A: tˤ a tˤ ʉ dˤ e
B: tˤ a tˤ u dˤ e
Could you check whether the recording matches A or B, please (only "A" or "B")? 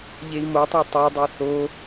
A